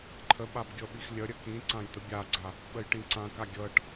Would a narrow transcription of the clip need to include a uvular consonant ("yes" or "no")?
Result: no